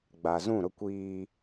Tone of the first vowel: low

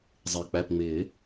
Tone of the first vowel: low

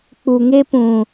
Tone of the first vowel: low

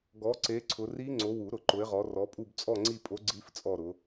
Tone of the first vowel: rising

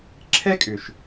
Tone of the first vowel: high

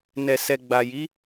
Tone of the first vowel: low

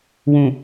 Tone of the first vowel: low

